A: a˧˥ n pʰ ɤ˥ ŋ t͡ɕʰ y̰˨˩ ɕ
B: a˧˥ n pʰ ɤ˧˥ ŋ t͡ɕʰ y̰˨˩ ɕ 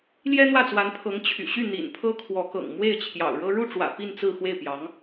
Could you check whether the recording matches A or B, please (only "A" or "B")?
B